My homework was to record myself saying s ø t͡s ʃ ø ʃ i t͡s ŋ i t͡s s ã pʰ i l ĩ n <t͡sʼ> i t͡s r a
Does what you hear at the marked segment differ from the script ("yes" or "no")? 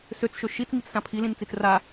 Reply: yes